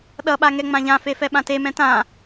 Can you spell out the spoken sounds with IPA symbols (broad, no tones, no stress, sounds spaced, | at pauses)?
ɗ ʌ ɓ a ŋ ɛ ŋ͡m ã ʎ ã f e f ɛ ɓ ã t e m ɛ̃ t ã